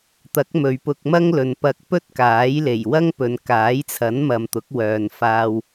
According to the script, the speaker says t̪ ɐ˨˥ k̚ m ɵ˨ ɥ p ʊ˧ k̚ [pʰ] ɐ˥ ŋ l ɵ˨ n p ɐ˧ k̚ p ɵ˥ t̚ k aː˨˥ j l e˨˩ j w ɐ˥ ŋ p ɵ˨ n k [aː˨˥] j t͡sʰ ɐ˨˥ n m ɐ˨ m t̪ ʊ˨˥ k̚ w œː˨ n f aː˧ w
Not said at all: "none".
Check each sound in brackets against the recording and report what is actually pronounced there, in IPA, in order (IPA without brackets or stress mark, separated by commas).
m, aː˨˥